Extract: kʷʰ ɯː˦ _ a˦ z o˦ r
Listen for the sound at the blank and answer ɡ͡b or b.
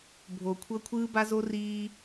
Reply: b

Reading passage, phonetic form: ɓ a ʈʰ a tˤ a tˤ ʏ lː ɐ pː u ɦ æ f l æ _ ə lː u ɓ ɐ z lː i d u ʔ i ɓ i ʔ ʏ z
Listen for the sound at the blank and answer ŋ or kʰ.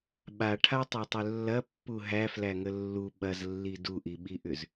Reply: ŋ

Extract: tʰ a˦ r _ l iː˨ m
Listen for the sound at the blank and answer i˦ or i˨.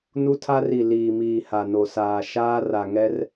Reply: i˨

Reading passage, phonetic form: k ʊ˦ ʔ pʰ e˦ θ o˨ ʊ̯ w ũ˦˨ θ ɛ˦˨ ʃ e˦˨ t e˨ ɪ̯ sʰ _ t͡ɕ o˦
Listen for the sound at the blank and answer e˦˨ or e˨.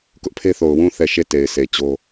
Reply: e˨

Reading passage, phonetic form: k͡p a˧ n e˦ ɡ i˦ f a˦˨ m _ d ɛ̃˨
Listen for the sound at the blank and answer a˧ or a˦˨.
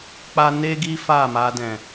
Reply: a˧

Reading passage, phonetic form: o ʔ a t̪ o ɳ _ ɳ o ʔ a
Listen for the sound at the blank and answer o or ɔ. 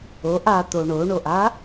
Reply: o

